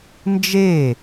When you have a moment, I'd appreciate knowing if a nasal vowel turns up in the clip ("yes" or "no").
no